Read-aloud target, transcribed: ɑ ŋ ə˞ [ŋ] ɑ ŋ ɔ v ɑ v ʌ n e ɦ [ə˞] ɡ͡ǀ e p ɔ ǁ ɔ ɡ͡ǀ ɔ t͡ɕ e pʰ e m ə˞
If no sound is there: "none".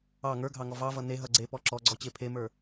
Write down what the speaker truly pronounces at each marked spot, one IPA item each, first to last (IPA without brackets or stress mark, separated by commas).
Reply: ɡʱ, ʌ